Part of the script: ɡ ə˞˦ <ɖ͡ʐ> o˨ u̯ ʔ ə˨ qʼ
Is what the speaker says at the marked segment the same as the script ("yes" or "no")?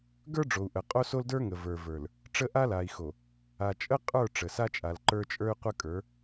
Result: yes